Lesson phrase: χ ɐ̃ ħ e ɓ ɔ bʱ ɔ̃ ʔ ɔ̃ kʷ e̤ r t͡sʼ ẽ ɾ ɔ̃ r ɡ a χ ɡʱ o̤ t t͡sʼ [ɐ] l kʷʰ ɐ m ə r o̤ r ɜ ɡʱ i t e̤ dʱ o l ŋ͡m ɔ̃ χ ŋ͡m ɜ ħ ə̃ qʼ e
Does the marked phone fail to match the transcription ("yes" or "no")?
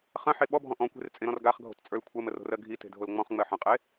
yes